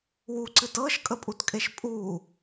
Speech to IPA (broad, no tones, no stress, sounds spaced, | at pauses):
w u ǀ ɨ t ɤ ʃ kʼ ə pʼ u t kʼ e ʃ pʼ u